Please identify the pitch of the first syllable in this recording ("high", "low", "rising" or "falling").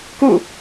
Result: falling